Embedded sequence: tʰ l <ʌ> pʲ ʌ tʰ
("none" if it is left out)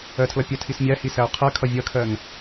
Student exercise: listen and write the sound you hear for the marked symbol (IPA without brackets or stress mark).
ʌ